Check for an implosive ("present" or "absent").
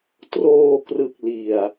absent